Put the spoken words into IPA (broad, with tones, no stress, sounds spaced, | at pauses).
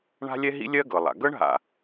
ɳ a̤˥ lʲ ɛ˥ ɦ ḭ˥ lʲ ɜ˥ ɡ ɤ˩ lˠ a̰˩ ɡ ɤ˥ ɳ ɦ a̰˩